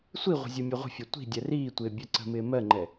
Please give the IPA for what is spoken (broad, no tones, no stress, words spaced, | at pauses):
sʷiʁʷə̤ zʲumʲɒʁʷə̤fʲɒ tʷi̤ dʲɛriːtʷɪː bʲɛǀə̤mɪː mɜŋ͡ǃɛ